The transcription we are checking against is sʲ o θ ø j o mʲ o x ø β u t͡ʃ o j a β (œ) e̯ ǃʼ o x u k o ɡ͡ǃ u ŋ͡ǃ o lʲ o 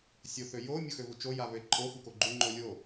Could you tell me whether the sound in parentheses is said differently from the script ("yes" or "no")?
yes